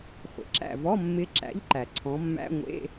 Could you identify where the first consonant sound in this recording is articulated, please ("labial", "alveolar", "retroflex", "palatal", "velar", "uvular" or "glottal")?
uvular